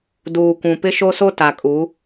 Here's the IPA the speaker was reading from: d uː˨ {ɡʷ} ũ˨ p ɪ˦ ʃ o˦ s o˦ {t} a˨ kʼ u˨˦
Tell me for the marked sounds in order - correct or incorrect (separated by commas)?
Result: incorrect, correct